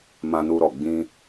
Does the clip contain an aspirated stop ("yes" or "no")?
no